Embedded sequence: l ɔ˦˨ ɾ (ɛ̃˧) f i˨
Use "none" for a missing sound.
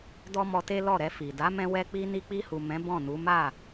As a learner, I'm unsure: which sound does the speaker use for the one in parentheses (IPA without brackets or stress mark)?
ɛ˧